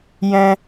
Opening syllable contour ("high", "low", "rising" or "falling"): high